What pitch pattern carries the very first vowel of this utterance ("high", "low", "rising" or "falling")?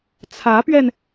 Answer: rising